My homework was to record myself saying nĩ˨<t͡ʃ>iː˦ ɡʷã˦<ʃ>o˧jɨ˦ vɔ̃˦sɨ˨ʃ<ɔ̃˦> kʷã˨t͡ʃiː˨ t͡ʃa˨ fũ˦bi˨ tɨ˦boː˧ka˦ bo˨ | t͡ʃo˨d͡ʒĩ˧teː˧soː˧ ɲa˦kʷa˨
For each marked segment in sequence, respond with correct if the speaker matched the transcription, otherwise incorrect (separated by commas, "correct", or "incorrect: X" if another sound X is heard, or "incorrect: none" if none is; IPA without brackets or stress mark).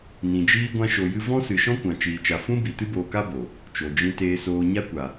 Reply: incorrect: d͡ʒ, correct, correct